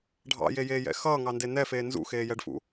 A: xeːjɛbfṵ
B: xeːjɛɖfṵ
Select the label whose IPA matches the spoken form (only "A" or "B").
B